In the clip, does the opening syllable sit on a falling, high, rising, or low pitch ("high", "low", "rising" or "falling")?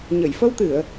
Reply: low